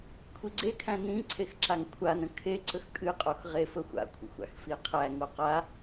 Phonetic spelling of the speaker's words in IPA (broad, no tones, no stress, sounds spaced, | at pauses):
kʷʰ i ɡ͡ǀ e kʰ æ̃ n ĩ ǀʰ e x ǁ a ŋ kʷʰ a n ə̃ kʰ e ǀ ə x kʼ ɨ qʼ o x ʁ e f ə xʷ a̰ kʷʰ ə̰ xʷ a̰ x f i qʰ æ ŋ o q a